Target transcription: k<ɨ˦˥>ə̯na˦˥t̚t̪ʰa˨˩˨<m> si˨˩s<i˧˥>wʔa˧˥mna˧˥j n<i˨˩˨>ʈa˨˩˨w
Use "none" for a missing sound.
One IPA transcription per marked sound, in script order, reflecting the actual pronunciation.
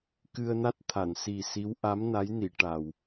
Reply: ɨ˧, n, i˧˥, i˨˩˨

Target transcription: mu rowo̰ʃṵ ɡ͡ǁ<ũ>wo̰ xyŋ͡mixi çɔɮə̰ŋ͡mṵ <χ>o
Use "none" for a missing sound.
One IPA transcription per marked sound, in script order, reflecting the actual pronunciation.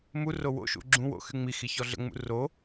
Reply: ũ, r

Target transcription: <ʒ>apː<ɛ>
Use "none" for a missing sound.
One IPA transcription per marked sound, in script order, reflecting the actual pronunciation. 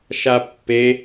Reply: ʃ, e

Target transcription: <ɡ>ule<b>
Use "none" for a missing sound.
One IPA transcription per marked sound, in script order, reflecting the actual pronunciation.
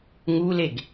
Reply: ŋ, ɡ

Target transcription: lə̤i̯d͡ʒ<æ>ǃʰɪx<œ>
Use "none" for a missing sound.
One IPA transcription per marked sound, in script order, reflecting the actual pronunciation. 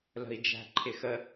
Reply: æ̤, ə

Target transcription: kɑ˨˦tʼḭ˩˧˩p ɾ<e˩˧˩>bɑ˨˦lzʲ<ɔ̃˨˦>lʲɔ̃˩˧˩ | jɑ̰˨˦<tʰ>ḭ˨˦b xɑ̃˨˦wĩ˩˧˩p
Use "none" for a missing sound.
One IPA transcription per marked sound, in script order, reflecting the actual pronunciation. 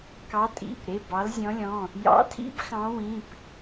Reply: e˩˧˩, ɔ̃˨˦, tʰ

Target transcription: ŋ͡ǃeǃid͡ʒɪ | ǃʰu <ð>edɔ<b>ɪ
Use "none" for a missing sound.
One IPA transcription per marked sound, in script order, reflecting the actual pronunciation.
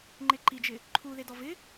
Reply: ð, v

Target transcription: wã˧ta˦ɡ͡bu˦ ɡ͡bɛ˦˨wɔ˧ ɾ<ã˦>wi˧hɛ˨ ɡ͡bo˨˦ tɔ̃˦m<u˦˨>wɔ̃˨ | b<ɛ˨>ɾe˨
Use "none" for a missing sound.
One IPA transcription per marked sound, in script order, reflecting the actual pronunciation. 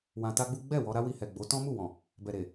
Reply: a˦, u˦˨, ɛ˨

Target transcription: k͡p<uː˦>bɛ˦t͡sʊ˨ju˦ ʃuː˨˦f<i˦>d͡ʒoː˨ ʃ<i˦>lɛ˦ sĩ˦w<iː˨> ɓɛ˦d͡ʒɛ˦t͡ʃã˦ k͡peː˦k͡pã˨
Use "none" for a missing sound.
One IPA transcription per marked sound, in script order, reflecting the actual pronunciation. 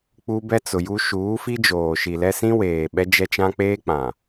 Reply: u˦, i˦, i˨, eː˨

